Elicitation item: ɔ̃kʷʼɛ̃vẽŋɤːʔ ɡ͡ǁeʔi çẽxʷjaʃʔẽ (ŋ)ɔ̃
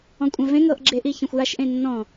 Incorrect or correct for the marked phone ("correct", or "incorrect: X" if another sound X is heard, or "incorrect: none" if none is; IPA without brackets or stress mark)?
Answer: incorrect: nː